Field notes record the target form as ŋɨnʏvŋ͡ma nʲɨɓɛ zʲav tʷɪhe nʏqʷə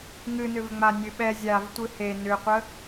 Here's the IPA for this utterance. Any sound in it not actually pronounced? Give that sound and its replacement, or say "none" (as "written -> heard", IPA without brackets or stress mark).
ɪ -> ɨ